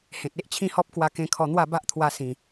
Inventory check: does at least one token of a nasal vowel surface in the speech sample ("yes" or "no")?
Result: yes